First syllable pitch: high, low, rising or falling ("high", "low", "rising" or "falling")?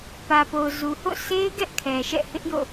low